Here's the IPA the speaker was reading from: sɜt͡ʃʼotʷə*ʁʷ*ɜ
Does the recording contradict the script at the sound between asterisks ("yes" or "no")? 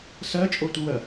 yes